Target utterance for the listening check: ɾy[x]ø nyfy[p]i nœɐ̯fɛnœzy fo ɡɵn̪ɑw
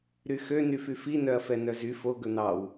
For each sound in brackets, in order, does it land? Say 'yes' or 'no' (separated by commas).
yes, no